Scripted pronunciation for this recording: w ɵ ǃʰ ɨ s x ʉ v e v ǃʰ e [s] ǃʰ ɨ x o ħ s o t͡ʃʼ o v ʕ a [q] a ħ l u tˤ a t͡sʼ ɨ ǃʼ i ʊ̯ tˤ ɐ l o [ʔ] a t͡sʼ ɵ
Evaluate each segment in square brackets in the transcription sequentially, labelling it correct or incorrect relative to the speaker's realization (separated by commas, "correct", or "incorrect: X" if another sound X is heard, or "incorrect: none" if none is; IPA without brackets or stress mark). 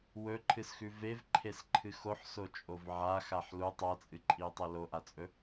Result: correct, incorrect: x, correct